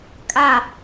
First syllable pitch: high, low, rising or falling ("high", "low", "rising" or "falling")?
falling